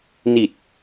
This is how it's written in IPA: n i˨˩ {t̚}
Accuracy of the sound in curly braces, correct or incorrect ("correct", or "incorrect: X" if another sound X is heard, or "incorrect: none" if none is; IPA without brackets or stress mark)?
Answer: correct